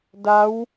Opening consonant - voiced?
yes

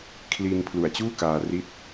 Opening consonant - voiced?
no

